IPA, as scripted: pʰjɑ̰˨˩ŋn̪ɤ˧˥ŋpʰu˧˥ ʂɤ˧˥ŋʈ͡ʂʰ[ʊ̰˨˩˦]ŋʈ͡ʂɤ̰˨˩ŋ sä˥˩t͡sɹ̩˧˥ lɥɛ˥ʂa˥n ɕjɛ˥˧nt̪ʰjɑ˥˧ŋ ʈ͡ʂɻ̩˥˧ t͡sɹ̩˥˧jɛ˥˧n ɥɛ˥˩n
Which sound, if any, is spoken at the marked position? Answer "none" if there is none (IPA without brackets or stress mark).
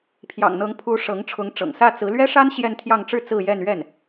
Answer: ʊ˧˥